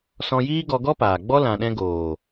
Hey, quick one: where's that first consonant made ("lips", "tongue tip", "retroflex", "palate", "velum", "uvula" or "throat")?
tongue tip